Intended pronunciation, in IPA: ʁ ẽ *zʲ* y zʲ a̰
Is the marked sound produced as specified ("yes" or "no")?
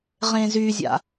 no